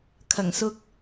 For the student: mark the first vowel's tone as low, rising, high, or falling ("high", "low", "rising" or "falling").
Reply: low